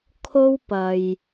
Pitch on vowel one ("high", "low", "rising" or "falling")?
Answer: high